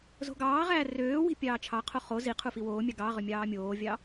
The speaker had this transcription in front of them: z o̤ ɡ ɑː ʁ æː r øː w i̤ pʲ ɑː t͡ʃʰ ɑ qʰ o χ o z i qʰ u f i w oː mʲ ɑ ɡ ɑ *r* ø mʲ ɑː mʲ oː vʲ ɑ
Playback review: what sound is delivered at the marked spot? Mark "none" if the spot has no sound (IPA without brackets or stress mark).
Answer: ʁ